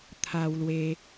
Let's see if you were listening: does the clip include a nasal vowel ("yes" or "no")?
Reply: no